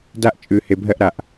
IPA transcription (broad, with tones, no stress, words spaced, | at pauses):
da˦ʔt͡ʃʼʉ˨ he˨bʱɜ˦ʔɾa˨ʔ